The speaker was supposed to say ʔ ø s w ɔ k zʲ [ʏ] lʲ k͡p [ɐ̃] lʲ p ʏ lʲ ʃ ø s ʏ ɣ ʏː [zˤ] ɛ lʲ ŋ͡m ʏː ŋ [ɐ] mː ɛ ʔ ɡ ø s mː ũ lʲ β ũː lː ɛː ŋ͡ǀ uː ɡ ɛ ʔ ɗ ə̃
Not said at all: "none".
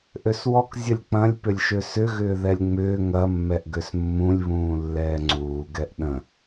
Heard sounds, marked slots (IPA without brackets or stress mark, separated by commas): ə, ɐ̃, ð, ɐ